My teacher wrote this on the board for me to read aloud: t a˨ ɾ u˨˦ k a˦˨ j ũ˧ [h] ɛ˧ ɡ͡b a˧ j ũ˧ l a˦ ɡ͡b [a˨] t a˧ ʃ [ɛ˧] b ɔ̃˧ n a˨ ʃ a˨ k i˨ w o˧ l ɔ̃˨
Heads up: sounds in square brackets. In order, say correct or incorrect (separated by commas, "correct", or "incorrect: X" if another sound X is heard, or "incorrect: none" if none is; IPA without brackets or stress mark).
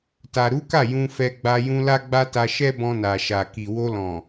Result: incorrect: f, incorrect: a˦, incorrect: ɛ˦